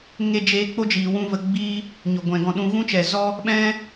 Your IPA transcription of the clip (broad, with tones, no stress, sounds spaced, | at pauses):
ŋ e˦ d͡ʒ eː˧ k͡p o˦ d͡ʒ iː˨ w ũ˦ v ə˧ ɡ͡b iː˦ | ɲ o˨ ɡʷ ɛ̃˨ ɡ ɔ̃˧ ɗ ũ˧ ɣ ũ˦ t͡ʃ ɛ˨ z ɔ˦ | ɓ ɛ̃˦